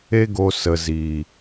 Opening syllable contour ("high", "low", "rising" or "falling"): high